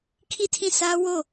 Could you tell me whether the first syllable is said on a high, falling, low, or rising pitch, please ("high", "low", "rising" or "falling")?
falling